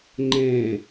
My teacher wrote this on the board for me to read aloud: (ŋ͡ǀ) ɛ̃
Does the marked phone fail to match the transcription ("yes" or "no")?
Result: yes